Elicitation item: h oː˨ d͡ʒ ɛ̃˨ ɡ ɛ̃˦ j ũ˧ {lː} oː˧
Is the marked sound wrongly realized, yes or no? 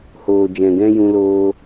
yes